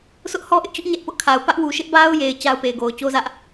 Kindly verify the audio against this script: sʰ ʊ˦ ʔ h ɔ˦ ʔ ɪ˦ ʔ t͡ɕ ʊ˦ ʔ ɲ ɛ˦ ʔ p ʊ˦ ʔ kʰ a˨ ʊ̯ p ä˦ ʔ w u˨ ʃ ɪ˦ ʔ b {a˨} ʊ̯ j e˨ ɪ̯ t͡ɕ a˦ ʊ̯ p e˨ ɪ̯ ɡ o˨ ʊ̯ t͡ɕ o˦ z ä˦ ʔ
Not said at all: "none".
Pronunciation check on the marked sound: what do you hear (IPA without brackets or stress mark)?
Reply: a˦